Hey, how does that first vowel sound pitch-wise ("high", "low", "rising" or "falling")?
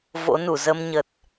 rising